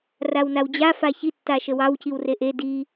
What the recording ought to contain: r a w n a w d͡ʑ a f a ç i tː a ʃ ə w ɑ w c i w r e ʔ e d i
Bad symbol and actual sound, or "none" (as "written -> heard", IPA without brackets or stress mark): none